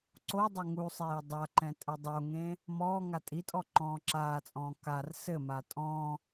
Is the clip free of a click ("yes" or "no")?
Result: no